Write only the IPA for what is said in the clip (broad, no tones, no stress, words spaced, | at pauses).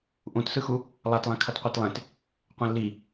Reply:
ʔũtsɯxu | lˠatlˠɛ̃ kʰʌtqʷetlˠẽt | qʷɛ̃lːi